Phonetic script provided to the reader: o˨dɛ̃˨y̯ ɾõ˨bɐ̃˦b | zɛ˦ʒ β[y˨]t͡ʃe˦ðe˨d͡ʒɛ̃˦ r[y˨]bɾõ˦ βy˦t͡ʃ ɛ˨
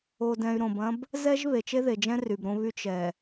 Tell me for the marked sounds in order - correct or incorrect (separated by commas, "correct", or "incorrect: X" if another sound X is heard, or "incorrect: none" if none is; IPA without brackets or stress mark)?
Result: incorrect: e˨, correct